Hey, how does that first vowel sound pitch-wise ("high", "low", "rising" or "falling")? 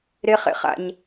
high